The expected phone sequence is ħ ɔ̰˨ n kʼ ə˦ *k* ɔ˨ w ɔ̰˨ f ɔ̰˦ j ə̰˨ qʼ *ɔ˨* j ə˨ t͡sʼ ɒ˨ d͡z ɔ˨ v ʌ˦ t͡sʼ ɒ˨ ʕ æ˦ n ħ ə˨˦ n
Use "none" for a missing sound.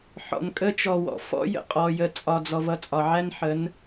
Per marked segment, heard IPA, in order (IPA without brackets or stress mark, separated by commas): t͡ʃ, ɔ˨